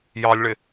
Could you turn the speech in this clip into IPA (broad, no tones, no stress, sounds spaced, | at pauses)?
j ɑ lʲ ɭ ɪ